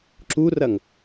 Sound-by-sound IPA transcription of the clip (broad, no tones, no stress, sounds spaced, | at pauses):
ǁ u r ɐ ŋ